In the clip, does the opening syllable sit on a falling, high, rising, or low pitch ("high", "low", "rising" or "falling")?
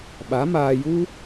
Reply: rising